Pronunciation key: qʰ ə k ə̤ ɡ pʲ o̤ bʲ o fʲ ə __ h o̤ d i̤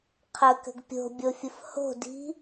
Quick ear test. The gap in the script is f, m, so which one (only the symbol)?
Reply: f